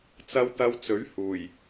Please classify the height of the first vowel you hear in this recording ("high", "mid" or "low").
low